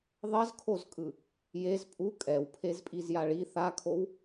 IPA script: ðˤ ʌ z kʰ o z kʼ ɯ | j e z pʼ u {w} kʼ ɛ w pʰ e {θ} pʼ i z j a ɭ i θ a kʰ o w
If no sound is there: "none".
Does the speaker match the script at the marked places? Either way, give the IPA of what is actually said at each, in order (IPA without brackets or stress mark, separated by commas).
none, z